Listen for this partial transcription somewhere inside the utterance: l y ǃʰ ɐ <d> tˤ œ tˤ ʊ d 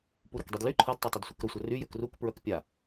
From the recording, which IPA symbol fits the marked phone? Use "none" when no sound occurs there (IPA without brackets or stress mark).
d